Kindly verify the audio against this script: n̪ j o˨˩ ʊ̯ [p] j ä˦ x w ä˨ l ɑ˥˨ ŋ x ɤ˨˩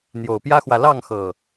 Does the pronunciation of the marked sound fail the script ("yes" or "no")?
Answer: no